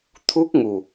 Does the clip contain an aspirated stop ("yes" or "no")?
yes